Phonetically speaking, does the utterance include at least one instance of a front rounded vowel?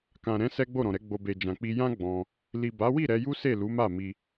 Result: no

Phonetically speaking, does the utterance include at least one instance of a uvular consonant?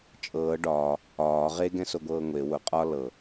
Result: yes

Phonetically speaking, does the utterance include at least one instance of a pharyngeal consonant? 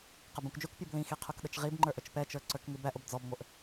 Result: no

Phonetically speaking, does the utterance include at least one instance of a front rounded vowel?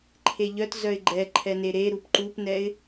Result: yes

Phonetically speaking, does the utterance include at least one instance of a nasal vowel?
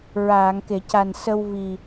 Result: no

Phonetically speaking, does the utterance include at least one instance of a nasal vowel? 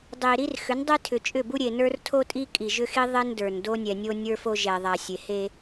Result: no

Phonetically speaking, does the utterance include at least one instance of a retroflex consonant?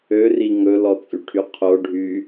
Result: yes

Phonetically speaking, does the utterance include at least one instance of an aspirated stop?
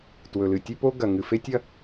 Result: no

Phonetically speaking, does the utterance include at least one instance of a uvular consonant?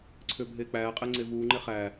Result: yes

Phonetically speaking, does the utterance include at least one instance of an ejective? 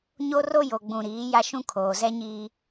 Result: no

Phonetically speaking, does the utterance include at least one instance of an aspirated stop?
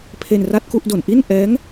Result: yes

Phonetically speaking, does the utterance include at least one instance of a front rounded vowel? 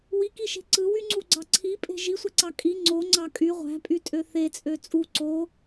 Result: yes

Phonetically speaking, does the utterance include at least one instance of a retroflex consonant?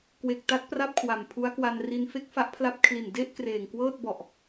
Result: no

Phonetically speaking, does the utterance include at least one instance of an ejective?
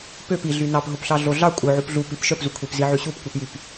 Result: yes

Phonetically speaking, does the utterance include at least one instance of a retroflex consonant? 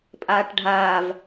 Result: yes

